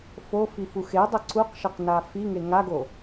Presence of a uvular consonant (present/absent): present